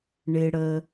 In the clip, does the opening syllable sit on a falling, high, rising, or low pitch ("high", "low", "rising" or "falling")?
low